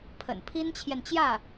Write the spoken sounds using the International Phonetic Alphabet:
pʰə̰˨˩n pʰi˥nt͡ɕʰjɛ˨nt͡ɕjä˥˩

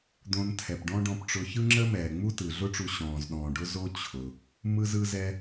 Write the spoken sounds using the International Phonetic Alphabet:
d̪õ˧n tʰɛ˩pɖɔ̃˥ɖɔ̃˧pʈ͡ʂʊ˧ çɯ˥ŋ͡ǁə˥mɛː˩ ŋ͡mu˥tɯ˩ɮʊ˥ʈ͡ʂu˧ ɕɔ̃ː˩z ɗɔ̃ː˩ɖʊ˥ zo˥ t͡ɕʰʊ˩ | mɯ˥zɯ˥zɛ˥

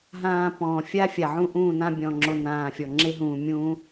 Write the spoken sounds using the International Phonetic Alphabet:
ɦãː˨ pɔ̃ː˨fʲa˦ fʲa˨ʕũ˦ʔũː˦˨nã˦ bʲɔ̃˨ŋ͡ǁo˨ nãː˨fʲɔ˨ ŋ͡ǁe˦ ɦũː˨mʲũː˦

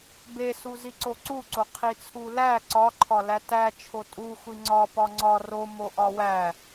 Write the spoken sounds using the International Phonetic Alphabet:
besu ziǀoǀuǀo qʰit͡sʰulæ ǀɒǃʰɒ lætæ t͡ʃʰotʼu xʷiŋ͡ǀɒ pɒŋ͡ǀɒ ro moʔɒwæ

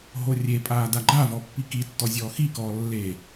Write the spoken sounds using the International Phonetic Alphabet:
ɦorʲepʼaː daɡ͡ǃavɔ pːikitːɔ zʲɔːxikɔː lːe

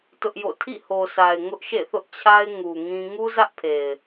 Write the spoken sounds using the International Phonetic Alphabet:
tʊ˦ʔjo̰˦˨ tʰḭ˦˨ho˨sʰa˨ɪ̯ ŋʊ˦ʔʃḛ˦˨θʊ˦ʔt͡ɕʰa˦ɪ̯ ŋu˨ ŋĩ˦ ŋu˦zä˦ʔpʰe˨ɪ̯

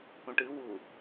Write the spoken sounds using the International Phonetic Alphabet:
ũʈɨ wu

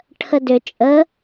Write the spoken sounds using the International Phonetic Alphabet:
ʈʰədʏ t͡ʃʼə

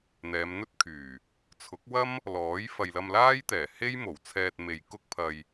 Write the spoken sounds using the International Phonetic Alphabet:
n̪ɛː˨˧mn̪ɵ˥t̚kʰyː˨˩ | t͡sʰʊ˨˥k̚wɐ˥m | lɔː˨˥j fɐ˨jlɐ˧mlaː˥jt̪ɛː˨˩ he˥j mo˨˩wt͡sʰɛː˧t̚me˨j kʊ˥k̚pʰɐ˧j

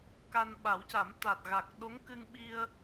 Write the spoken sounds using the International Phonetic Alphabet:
ka˧nɓa˨˩˦wca˨˩˦m t̪a˨˩t̚ɣa˨˩k̚ ɗo˧˥ŋkɨ˧ŋɓi˧ə̯

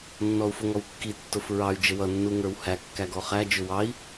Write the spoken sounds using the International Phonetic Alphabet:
nːɔu̯fʊŋɔwkːi tːʊfɹɑy̯ d͡ʒəwʌ nːuŋə˞whæ kːæɡɔχæ d͡ʒʊwɑi̯

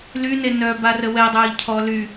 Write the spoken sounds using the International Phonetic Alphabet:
lyne nœ barəwɛdˤœːʎ cʰɔ ly

